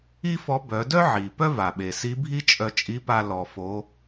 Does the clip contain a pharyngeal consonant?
yes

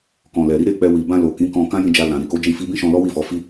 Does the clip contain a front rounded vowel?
no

